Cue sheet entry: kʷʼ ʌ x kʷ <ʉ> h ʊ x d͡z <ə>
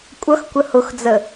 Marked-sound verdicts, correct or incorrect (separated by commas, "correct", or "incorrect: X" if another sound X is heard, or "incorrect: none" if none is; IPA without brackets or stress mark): incorrect: ə, correct